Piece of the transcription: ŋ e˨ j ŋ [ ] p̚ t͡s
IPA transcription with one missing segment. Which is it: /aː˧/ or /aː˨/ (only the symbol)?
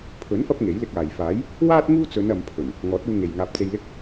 aː˧